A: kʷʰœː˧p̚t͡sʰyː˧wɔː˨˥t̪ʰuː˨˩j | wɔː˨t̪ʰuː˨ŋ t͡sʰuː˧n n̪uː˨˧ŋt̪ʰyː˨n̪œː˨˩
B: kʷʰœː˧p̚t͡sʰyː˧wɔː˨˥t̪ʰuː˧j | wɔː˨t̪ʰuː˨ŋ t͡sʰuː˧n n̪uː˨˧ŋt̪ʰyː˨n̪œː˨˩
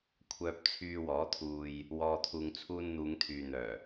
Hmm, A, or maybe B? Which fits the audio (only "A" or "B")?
B